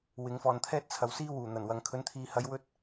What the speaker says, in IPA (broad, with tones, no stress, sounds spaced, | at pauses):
w ɪ˨˧ ŋ f ɔː˨ n t̪ʰ ɛː˥ t̚ t͡sʰ ɐ˨ w s iː˥ w uː˨˩ n̪ ɐ˨˩ n w ɐ˨ ŋ kʰ ɵ˨˧ n t̪ʰ iː˨ h ɐ˨˧ j w ɵ˥ t̚